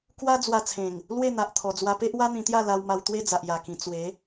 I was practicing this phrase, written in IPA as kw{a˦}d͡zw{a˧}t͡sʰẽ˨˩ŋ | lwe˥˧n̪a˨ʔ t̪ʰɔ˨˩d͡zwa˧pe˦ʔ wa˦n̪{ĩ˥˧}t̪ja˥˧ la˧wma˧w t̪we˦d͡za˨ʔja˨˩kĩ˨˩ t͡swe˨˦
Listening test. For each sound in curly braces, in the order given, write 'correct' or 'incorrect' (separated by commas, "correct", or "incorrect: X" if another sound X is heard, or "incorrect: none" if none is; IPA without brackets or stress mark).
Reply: correct, correct, incorrect: ĩ˧